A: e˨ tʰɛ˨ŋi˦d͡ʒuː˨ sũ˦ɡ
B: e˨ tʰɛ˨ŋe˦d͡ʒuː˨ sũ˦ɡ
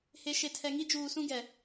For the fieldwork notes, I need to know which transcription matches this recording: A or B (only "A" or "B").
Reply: A